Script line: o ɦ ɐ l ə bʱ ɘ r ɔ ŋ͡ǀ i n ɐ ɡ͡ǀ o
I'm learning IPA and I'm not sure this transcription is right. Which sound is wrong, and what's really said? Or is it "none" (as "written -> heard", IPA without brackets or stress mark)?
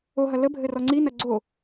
none